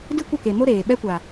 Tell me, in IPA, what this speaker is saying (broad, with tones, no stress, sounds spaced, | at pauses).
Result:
d ɨ˦ kʷ ə˦˨ k e˨ m o˦ ɾ eː˨ ɓ ɛ˧ kʷ a˨